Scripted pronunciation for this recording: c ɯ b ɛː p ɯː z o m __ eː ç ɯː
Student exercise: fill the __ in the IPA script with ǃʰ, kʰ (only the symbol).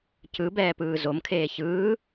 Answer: kʰ